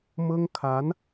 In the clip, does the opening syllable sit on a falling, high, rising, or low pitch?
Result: high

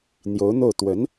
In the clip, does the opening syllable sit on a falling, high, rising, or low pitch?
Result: rising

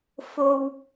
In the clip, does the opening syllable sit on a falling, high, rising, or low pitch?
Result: low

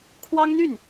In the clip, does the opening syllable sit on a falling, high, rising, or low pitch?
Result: high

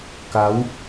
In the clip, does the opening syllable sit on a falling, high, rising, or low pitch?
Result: rising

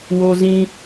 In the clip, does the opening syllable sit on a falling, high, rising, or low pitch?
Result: high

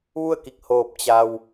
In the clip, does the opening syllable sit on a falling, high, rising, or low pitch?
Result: falling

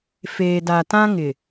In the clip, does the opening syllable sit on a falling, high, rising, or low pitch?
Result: low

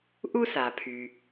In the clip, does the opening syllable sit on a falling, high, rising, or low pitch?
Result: high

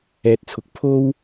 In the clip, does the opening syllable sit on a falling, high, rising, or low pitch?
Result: low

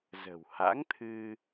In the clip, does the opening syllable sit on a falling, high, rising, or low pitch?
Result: low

